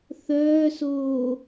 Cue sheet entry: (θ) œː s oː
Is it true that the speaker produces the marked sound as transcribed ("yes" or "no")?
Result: yes